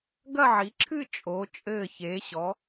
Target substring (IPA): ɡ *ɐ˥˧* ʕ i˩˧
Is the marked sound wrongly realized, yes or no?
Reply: no